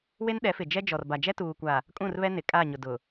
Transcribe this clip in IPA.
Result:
w e˦ n ɗ ɛ˨˦ f ɪ˨ d͡ʒ ɛ˦ d͡ʒ ɔ˨ r b a˨ d͡ʒ ɛ˦ t uː˨ kʷ a˨ | kʼ ũ˦˨ r β ɛ˦ n ɪ˨ kʼ a˦˨ ɲ ʊ˨ d ʊ˨

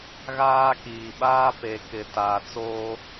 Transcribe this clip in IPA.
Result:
ɣ aː˦ k iː˨ ɓ aː˦ p e˨ k ɪ˨ t aː˨ t͡s oː˦

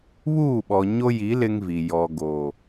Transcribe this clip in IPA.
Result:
β uː˦˨ ɓ ɔ˨ ɲ o˦ j i˨˦ l ɪ˦ ŋ v i˨ j ɔ˨ ɡ o˨

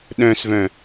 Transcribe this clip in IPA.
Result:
ɗ œ̃ s v œ̃

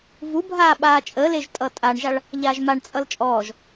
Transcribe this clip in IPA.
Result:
v u bʱ aː ɓ aː t͡ʃʼ əː l e ʒ tʼ ʌ tʼ a ɳ ʒ a ɭ | ʎ aː ʒ m a ɳ t͡sʼ ʌ l t͡ʃʼ ɔː ʒ

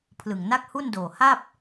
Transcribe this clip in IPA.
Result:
pʰ l ɯ˨˩ ŋ n a˥˩ k̚ h u˥˩ n d oː˨˩ h a˥˩ p̚

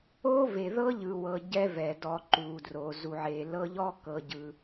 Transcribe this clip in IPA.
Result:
oː˦ v e˨ ð ɤ˦ ʎ ɯ˨ w ɤ˨ ɟ ɛ˦ v ɛ˨ d ɔ˧ ǃ uː˨ d r o˨ z u˨ ʕ eː˨ l ɤ˧ ʎ ɔ˦ k ɤ˨ ɟ ɯ˨

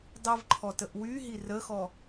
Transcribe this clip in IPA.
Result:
dˤ i v ǃʰ ɔ t ə ʔ w y ɦ i r ə x ɔ

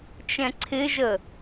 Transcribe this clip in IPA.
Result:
t͡ʃ ɛ̃ ǀʰ ɪ ʒ ə

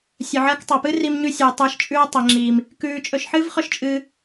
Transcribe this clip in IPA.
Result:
sʲ ɵ˨ ʕ ɐː˧ k tˤ a˨ p ɨ˦ r i˦ m ɲ ʉ˦ sʲ ɨː˨ tˤ ɨː˧ ʃ t͡ʃʼ ʉː˧ tˤ ɐ˨ ŋ͡ǁ iː˨ m | k ʉː˧ t͡ʃʼ ɵ˧ ʃ ħ ɨː˦ v χ ɵ˦ ʃ t͡ʃʼ ɨː˧

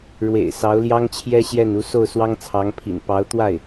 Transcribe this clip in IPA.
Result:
ɻ w ḛ˨˩ ɪ̯ s ɑ˧˥ ʊ̯ l j ɑ˥ ŋ t͡ɕʰ j ɛ˥ ɕ j ɛ˥˩ n u˧˥ s o˥˩ ʊ̯ s w ɑ˥ ŋ t͡sʰ ɑ˧˥ ŋ pʰ ḭ˨˩ n p ɑ˧˥ ʊ̯ t̪ w a˥˩ ɪ̯

